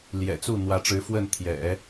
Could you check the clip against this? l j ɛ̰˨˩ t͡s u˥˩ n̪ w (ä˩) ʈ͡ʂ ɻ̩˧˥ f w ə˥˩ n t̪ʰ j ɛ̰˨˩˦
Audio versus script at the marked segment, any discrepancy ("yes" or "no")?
yes